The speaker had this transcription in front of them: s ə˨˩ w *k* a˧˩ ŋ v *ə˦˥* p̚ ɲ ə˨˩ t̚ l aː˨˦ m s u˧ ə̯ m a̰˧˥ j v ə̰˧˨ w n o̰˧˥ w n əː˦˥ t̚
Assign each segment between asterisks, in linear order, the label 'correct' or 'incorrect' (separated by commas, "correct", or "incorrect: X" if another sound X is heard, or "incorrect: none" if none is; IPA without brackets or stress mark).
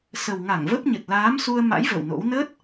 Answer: incorrect: ŋ, correct